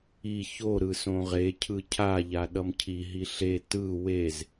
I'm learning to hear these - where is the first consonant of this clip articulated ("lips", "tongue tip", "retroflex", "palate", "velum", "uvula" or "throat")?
palate